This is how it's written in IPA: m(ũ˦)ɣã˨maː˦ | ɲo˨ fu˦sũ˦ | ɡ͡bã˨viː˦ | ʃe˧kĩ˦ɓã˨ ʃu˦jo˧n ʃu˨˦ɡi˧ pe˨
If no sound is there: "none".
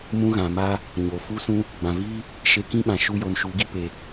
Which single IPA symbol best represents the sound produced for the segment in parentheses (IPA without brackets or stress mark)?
ũ˦